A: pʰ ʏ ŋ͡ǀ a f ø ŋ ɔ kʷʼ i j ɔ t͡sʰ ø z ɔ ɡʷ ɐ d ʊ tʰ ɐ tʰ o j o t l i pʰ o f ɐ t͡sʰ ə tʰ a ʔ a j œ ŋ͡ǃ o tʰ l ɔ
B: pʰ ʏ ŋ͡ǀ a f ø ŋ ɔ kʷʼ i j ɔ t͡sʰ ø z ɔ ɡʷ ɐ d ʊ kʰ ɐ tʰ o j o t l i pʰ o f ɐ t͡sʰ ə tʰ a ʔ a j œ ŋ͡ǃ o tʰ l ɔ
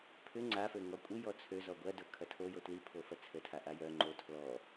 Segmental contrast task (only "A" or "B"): B